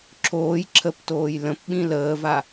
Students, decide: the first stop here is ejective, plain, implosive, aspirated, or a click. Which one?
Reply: click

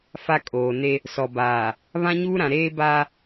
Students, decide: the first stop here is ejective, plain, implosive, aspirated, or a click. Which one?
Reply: ejective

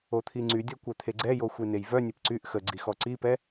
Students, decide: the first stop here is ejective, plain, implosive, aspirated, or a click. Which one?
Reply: aspirated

